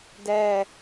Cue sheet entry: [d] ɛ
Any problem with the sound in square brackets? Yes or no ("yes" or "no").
no